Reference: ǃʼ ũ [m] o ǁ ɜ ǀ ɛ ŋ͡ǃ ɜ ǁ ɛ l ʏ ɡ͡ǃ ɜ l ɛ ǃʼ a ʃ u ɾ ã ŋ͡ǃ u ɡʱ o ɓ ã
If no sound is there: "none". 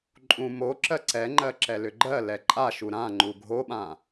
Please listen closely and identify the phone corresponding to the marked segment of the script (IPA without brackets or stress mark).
m